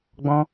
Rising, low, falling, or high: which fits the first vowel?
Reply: high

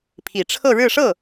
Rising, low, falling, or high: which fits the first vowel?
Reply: low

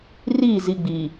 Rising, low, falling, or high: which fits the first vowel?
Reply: falling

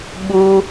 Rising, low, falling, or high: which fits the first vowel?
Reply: high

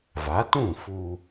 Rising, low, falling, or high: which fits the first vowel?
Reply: rising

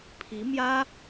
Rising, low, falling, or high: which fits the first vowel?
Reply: rising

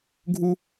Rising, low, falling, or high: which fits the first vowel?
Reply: high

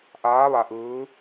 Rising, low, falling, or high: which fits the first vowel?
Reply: rising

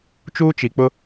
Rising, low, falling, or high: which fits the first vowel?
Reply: high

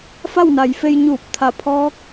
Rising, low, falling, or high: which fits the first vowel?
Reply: falling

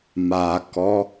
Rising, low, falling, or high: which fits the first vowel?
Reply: low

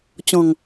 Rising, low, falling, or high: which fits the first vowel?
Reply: low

